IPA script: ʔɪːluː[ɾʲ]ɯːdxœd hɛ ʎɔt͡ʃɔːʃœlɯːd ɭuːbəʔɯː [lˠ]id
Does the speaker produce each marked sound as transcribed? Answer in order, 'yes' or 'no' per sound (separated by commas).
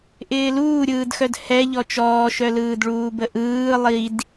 yes, yes